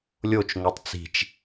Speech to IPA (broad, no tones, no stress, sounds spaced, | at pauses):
lʲ o t͡ʃ ŋ o tˤ t͡s i̤ t͡ʃ